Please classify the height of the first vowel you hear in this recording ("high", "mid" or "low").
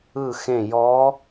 high